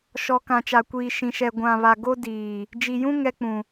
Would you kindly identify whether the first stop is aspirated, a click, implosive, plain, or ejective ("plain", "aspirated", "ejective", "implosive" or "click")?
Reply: plain